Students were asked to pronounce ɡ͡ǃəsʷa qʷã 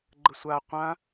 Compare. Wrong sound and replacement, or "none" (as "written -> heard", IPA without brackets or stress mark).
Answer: none